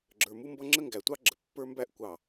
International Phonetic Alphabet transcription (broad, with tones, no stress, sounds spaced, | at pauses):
ɡ͡ǁ ə˞˨ m u˦ m b ʌ˦ ŋ͡ǁ ə˦ ŋ ɡ æ˨ tʷ ɑ˦ ɡ͡ǁ ə˨ pː ə˞˦ m b æ˦ ʔ kʷ ɑ˨